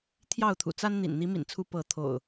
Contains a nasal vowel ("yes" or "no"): no